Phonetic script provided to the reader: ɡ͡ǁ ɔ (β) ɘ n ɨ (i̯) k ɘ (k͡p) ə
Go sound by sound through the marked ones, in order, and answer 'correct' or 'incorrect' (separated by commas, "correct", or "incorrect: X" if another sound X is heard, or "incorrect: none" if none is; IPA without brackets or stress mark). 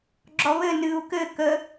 correct, incorrect: u̯, incorrect: k